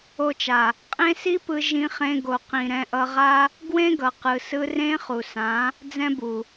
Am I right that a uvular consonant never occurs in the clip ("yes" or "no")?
no